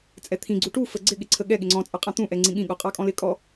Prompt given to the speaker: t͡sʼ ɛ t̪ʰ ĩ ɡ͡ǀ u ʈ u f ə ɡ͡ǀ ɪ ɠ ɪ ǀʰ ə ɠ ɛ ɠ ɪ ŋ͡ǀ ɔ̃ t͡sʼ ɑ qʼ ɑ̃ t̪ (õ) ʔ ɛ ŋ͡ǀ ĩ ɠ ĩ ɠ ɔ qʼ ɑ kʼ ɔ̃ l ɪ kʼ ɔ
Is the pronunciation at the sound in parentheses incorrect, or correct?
incorrect